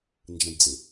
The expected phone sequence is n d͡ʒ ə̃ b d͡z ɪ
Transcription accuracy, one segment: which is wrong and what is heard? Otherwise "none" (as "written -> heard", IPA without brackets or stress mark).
none